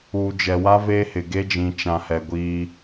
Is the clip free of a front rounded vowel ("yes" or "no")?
yes